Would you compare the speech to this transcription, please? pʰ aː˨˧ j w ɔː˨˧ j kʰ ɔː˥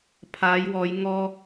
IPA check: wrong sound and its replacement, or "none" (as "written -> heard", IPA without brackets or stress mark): kʰ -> ŋ